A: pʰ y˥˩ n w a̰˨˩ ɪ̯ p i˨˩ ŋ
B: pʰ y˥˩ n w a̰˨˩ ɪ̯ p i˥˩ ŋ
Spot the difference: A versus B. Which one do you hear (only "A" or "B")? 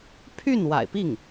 B